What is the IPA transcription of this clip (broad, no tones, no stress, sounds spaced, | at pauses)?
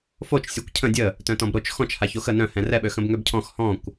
f o t͡ʃ sʲ ɔ kʷ cʰ ə̃ dʲ ə | t œ̃ t ɔ̃ b ɾ o t͡ʃ x ɔ̃ t͡ʃ h a ç o x ə n œ̃ h ɛ̃ r ɛ ɓ ø x ə̃ b ŋ ø b cʰ ɔ̃ x h ɔ̃ kʷ